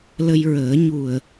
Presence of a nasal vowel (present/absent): absent